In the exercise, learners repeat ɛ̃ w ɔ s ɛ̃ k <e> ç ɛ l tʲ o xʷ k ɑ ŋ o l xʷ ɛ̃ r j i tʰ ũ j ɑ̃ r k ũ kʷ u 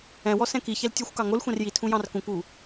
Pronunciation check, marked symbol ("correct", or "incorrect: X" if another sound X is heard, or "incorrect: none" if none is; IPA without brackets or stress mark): incorrect: i